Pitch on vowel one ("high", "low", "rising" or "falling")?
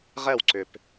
falling